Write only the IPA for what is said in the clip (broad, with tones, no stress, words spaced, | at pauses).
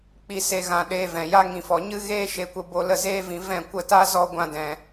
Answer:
k͡pi˧se˧ ɣã˧ ɗeː˧vɛ̃˨ja˦ ŋĩ˧fɔ˧ ɲɨ˦ ɣeː˦ʃe˧kʷə˧ bo˧lə˦˨zeː˦vĩ˧ vɛ̃˦˨ kʷə˦˨ta˦zɔ˦ ɡʷã˦dɛ̃˧